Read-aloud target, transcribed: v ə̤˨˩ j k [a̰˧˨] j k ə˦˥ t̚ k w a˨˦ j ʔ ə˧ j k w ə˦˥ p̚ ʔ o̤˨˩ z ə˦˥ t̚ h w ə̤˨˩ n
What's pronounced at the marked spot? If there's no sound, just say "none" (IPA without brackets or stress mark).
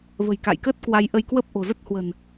a̰˧˨